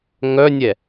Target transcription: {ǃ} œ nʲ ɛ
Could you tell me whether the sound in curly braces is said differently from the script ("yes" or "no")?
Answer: yes